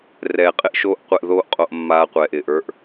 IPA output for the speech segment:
r ɛː˨ qʼ ɪ˦ ʔ ʃ oː˦ ʔ qʷ ɛ˧ ʔ ð oː˦ ʔ qʼ o˧ ʔ mː aː˧ qʷ ɛː˨ ʔ ɪː˨ ʔ ə˞˦ ʔ

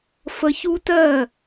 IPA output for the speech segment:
f ə˧ ç u˦ t ɜ˦˨

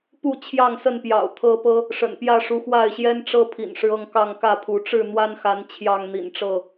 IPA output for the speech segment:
p u˥˨ t͡ɕʰ j ɑ˥˨ ŋ s ə˥˨ n p j ɑ̰˨˩ ʊ̯ t̪ʰ ɤ˦ p ɤ˦ | ʂ ə̰˨˩ n p j ä˥˨ ʂ u˨˦ x w a˥˨ ɪ̯ ɕ j ɛ˦ n ʈ͡ʂ ɤ˦ pʰ ḭ˨˩ n ʂ ɻ̩˦ ɤ˥˨ ŋ k ɑ˥˨ ŋ k ä˥˨ pʰ u˨˦ ʈ͡ʂ ɻ̩˥˨ n̪ w a˦ n x a˨˦ n t͡ɕʰ j ɑ˥˨ ŋ n̪ ḭ˨˩ n ʈ͡ʂ ɤ˥˨

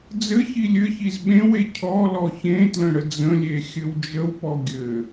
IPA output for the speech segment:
d͡z ɘ ç i lʲ ɘ ç i z ɓ ẽ w e cʰ ɔ l ɔ ç ẽ t l ə̃ ɽ ə d͡z ə̃ lʲ e xʲ ɘ w d͡ʒ ə w p ɔ ɡʲ ɘ

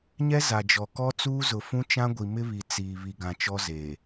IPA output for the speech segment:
ɲ ɛ˦ z a˨ d͡ʒ ɔ˨ k ɔ˦ t͡s uː˦ z ʊ˨ f ũ˦ t͡ʃ ã˦ ɡʷ i˨ m ɪ˦ β i˨ t͡s iː˨ β i˨ ɡ ã˨ t͡ʃ ɔ˦ z eː˨

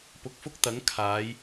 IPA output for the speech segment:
p ʊ˨ k̚ f ʊ˥ k̚ t̪ ɐ˨˥ ŋ kʰ aː˨˧ j

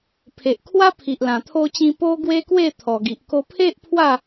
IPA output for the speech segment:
pʰ e˨ ʔ kʰ w a˦ pʰ i˨ ʔ l ã˨˩ t̪ʰ o˧ t͡ɕ ĩ˧ p o˧ ɡ w e˦ k w e˥˧ t̪ʰ ɔ˨˩ ɡ i˨ ʔ k o˧ pʰ e˦ ʔ pʰ w a˥˧

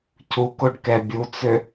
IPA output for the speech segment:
cʰ u k o ɖ k ɛ bʲ u t͡s ø

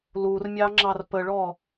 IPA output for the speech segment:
l u r mʲ ɑ ŋ͡ǁ ɑ r p ə ɭ ɔ

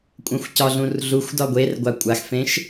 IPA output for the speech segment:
kʷʼ ɛ̃ xʷ c ɒ ɮ ũ r ɮ u xʷ d ɒ ɡʷ e r ɡʷ a kʷʼ a x f ẽ ʃ

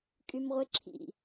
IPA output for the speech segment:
kʼ y m ʁʷ e ǁʰ ḭ

